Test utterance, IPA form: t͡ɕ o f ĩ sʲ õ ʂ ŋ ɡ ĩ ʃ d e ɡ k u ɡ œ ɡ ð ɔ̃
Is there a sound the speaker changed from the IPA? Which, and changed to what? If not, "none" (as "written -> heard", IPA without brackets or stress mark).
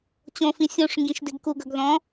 o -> õ